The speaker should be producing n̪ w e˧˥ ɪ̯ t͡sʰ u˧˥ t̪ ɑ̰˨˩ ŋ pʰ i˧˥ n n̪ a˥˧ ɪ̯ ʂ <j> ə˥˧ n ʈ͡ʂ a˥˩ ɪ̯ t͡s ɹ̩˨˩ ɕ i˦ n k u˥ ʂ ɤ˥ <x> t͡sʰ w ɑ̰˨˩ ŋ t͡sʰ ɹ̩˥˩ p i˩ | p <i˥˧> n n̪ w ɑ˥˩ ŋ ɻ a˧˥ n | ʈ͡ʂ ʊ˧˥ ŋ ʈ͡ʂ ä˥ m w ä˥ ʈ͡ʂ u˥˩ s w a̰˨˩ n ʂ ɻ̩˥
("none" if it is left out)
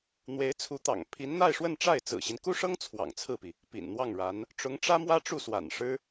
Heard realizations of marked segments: w, ŋ, ḭ˨˩

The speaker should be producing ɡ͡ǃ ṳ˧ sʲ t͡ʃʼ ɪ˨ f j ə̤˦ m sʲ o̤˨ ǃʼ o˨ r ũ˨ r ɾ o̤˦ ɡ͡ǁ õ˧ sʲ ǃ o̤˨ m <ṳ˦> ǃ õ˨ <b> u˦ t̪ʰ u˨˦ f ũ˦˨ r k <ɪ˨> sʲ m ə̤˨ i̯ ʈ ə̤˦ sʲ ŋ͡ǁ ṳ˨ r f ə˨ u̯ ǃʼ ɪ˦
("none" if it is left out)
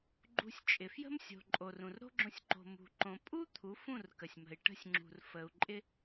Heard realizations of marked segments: ṳ˨, pʼ, ə˨

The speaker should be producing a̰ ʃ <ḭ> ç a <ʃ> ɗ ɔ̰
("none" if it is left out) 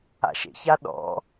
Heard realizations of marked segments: ḛ, none

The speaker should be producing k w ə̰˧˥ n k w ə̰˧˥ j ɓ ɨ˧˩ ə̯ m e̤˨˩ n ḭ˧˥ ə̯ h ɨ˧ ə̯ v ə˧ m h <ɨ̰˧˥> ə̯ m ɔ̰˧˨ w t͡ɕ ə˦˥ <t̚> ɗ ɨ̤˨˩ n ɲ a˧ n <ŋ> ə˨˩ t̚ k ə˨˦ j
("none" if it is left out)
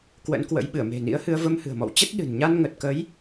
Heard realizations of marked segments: ɨ̤˨˩, t̚, ŋ

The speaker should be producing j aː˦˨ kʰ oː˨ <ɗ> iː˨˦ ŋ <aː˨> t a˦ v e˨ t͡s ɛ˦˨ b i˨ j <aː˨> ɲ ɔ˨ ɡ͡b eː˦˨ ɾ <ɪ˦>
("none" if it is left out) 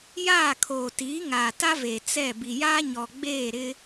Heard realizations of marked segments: t, aː˨, aː˦, ɪ˦

